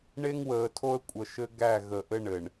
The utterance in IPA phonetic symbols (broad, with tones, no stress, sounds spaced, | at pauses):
ɳ e˦ ŋ w əː˨ tʰ o˦ ə̯ kʷʼ ə˨ ʃ ɘ˦ ɡ æ˦˨ ɣ ə˨ ʔ ɘ˦ ɳ ɘ˨ ɳ